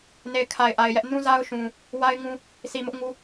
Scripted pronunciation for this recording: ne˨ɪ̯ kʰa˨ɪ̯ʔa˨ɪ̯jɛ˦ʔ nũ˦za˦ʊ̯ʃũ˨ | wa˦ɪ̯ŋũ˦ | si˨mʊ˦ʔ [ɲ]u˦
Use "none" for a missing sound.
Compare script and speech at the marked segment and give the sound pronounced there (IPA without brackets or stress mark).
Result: ŋ